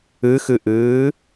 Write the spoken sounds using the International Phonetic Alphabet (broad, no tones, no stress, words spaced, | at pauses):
ɨxɨʔɨː